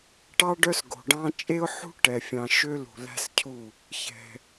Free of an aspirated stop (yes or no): no